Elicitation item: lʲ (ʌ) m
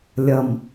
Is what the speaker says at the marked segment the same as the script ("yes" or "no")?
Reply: yes